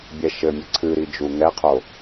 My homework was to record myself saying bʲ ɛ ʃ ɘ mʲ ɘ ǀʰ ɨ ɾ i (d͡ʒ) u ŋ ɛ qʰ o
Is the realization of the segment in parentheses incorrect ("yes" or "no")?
no